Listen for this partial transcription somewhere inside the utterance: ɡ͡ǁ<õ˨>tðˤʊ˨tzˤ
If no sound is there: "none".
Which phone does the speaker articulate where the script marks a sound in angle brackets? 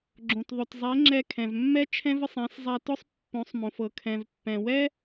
õ˨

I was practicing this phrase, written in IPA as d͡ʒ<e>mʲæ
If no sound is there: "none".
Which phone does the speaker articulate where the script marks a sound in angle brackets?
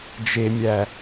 e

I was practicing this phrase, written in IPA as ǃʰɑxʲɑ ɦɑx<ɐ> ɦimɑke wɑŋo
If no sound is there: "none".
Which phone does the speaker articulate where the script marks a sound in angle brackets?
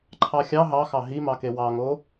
ɑ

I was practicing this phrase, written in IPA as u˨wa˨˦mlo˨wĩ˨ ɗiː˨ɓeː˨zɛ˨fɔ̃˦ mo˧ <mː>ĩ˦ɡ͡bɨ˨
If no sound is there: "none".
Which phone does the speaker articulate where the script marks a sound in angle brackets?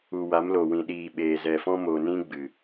n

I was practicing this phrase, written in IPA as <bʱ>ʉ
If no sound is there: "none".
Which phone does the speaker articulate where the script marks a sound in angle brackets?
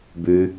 b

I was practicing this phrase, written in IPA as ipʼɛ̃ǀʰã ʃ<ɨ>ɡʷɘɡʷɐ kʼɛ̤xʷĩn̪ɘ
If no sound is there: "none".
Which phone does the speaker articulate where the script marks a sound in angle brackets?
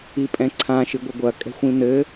ɨ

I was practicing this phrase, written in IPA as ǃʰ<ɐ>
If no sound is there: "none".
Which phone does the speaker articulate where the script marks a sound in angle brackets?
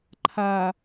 a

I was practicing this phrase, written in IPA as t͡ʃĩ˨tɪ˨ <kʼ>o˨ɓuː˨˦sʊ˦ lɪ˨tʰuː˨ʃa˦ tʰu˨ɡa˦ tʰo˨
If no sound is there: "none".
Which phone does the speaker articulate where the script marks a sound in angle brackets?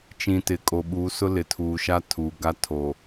kʼ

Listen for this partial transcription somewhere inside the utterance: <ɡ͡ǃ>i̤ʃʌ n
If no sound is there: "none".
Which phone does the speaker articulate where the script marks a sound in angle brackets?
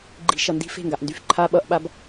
ɡ͡ǃ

